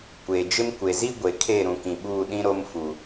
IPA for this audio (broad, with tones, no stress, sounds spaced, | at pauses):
kʷ eː˨ d͡ʒ ɪ˦ m kʷ e˨ z i˦ ɡʷ e˨ kʰ e˦˨ ɾ ũ˨ k ĩ˨ ɓ uː˦˨ ɗ ĩ˦ ɾ o˦ m f u˨